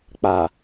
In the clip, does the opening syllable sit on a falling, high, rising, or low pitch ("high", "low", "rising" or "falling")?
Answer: low